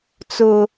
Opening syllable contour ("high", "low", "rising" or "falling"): high